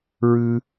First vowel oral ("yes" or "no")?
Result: yes